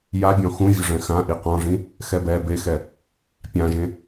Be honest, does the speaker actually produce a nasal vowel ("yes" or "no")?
yes